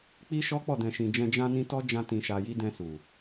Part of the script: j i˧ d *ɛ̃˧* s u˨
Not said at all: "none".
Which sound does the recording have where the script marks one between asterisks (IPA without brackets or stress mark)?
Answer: ɛ̃˧